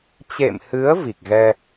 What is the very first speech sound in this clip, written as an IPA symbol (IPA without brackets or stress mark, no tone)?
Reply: t͡ɕ